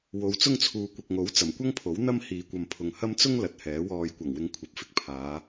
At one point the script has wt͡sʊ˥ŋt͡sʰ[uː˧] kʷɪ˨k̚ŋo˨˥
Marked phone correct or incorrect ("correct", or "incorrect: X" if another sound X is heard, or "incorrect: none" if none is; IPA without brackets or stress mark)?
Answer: incorrect: uː˨